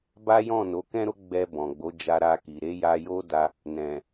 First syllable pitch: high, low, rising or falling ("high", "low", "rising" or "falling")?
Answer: high